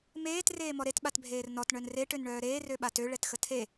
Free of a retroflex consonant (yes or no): no